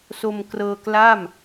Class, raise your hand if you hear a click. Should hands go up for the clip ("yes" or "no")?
no